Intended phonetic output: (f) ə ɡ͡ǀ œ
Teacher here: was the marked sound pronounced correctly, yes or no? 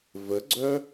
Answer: no